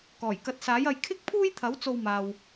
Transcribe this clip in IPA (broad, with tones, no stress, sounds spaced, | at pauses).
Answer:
k ɔː˨˩ j k ɐ˨˥ t̚ s aː˨˥ j ɐ˧ j kʰ ɪ˥ k̚ pʰ uː˥ j t̪ʰ ɐ˨˥ w t͡s o˧ w m aː˨ w